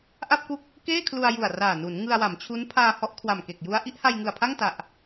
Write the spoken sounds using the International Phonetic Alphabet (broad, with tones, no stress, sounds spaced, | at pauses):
ʔ a˥˩ p̚ k u˥˩ k̚ | k eː˥˩ kʰ l u˧ a̯ j u˨˩ a̯ r aː˨˩ n u˩˦ n ŋ ɯ˧ a̯ w a˩˦ m t͡ɕʰ u˦˥ n pʰ aː˧ h ɔ˦˥ ʔ kʰ w a˨˩ m k e˨˩ k̚ j u˧ a̯ ʔ i˥˩ ʔ h a˧ j ŋ ɯ˨˩ a̯ pʰ a˥˩ ŋ t a˨˩ ʔ